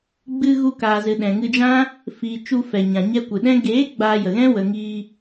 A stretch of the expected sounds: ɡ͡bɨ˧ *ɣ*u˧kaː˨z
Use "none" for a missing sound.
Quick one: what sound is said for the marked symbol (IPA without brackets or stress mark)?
ɣ